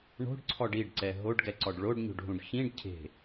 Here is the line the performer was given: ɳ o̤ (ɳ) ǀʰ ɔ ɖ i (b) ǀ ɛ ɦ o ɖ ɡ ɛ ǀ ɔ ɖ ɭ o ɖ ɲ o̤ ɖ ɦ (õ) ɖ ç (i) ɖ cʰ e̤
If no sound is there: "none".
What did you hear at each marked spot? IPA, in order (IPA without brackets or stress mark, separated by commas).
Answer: ɖ, ɖ, ũ, ĩ